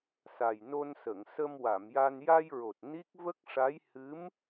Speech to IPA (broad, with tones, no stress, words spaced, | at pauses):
sa˨˩jno˧nsə˨˩˨ŋ sə˧mwa˨˩˨mja˧n ja˧jɹo˨˩t̚ ni˦˥k̚ və˦˥k̚ʂa˧˥j hɨ˧˥m